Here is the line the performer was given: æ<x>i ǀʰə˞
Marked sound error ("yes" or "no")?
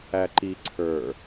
yes